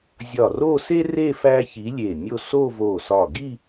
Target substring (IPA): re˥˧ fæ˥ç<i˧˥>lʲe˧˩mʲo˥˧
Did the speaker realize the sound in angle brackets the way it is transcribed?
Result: yes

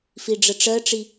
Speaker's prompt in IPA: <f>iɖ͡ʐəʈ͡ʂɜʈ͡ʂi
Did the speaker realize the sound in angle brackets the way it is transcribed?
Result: yes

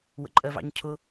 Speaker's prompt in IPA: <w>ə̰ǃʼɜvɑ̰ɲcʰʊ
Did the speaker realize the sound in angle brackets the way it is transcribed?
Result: yes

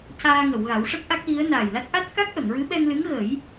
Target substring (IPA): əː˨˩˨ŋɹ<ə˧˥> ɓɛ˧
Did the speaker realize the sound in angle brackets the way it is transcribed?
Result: no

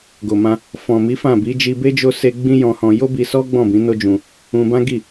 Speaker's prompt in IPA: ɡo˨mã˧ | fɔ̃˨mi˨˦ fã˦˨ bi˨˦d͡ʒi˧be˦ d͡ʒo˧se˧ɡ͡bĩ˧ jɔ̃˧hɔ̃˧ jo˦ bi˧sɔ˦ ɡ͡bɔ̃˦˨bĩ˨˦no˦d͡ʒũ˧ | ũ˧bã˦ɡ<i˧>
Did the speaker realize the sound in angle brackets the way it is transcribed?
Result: no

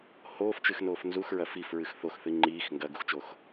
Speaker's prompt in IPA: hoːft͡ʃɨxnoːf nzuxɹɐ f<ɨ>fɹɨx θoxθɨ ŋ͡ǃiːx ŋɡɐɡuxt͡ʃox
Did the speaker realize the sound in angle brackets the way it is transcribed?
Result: no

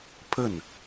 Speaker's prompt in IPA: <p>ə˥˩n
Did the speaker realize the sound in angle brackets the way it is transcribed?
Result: no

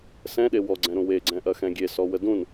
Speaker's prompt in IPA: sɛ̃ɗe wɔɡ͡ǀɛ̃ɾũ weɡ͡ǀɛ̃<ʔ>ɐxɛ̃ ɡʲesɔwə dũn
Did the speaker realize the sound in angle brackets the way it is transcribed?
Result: yes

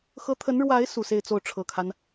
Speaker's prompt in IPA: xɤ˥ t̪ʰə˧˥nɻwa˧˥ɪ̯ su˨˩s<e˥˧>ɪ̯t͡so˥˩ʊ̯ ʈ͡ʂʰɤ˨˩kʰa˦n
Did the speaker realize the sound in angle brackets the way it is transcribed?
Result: yes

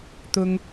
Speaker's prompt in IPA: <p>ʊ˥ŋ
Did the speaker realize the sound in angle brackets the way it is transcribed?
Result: no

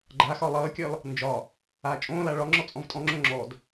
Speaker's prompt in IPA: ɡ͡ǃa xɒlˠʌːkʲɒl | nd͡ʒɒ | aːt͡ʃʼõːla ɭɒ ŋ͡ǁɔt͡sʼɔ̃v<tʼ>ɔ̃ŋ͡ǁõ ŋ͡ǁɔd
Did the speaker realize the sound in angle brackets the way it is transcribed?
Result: yes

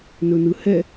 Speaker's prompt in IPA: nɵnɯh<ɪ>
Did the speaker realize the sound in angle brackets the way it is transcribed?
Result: no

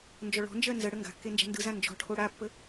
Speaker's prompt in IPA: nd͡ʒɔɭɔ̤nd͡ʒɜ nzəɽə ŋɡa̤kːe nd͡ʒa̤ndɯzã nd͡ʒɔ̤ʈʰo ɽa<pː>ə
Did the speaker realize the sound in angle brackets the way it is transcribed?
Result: yes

